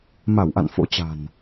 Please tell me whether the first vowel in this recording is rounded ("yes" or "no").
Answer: no